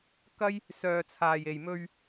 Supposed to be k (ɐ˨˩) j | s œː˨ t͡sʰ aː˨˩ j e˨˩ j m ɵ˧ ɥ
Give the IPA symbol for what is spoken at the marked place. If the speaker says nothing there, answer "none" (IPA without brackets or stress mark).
ɐ˥